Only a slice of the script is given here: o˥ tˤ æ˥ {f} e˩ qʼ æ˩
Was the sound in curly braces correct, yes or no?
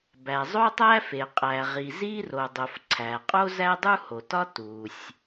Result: yes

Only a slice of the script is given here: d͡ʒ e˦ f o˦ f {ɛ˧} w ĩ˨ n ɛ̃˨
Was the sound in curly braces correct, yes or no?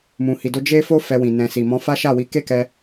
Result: yes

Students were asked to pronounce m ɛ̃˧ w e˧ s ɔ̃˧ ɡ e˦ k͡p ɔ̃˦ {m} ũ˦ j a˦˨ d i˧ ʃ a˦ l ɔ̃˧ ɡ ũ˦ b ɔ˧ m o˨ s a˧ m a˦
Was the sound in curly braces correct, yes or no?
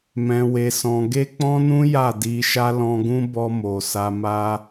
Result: no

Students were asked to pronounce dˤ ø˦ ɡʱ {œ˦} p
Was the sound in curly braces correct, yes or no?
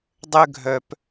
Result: no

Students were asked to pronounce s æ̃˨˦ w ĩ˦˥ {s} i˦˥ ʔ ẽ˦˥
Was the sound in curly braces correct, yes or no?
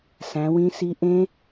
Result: yes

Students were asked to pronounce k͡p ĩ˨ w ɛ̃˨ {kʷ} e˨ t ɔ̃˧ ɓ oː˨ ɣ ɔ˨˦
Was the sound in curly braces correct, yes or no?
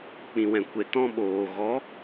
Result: yes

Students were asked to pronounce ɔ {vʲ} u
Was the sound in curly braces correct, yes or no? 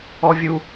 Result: yes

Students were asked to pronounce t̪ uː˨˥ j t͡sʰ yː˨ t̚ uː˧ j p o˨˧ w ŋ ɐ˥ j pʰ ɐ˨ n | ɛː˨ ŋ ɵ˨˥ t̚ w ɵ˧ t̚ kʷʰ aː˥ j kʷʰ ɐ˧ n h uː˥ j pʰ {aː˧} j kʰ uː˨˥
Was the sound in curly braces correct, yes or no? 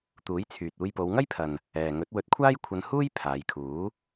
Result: no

